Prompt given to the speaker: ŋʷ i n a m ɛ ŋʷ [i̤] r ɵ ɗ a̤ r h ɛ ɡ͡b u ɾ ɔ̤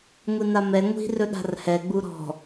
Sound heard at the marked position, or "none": i̤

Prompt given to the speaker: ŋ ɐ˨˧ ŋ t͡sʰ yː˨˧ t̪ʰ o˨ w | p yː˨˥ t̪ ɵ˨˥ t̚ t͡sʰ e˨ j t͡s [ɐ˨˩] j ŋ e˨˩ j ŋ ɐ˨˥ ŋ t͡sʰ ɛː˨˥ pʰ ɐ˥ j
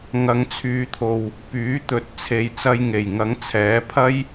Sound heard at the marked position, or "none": ɐ˧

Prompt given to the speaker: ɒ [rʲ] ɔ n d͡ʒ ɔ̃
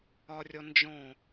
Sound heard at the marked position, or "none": rʲ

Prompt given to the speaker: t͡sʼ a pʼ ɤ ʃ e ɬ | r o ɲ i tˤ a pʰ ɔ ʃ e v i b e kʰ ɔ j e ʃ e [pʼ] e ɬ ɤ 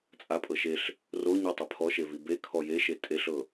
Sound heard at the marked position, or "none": tʼ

